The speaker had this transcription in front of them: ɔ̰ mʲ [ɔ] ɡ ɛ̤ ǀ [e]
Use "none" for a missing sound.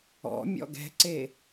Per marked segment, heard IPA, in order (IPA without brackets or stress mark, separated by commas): ɔ̰, e